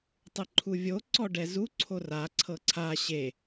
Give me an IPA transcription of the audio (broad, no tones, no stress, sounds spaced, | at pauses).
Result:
tˤ ɯ ǃʰ u vʲ o ǀ ɔ ɖ ɛ z u ǀʰ o r a ǀʰ ɤ ǀʰ a ɕ e